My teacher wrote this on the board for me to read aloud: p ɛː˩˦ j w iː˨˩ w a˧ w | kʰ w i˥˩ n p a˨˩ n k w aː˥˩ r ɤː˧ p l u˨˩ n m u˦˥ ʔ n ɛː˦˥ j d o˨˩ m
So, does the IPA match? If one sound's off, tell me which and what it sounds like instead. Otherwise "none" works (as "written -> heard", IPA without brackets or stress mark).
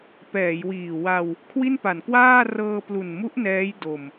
none